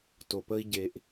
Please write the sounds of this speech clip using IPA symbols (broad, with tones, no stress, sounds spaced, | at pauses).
t o˨ p ə˦ i̯ ɟ e˧ ʔ